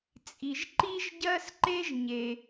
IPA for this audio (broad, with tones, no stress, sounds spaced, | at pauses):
t͡sʼ i˩ ʒ ǃ i˥ ʒ ɟ ɜ˥ s ǃ e˥ ʒ ɲ e˩